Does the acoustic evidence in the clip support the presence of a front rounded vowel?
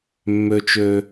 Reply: yes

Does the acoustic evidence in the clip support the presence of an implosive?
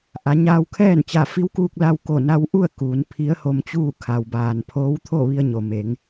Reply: no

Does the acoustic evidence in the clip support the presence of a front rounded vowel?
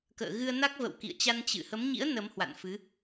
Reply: no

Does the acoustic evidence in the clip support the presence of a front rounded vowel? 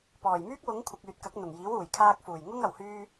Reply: yes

